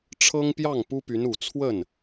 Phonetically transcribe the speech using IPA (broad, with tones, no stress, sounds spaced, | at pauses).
ʈ͡ʂʰ ɤ˥ ŋ p j ɑ˥˩ ŋ p u˥ p y˧˥ n u˨˩ t͡sʰ w ə˥˩ n